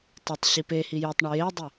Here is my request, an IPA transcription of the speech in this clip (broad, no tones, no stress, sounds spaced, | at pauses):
t ɐ tˤ ɕ i p e h i j ɵ tˤ ɳ ɐ j e dˤ i